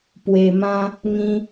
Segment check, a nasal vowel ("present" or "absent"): present